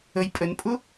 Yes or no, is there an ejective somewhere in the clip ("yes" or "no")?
yes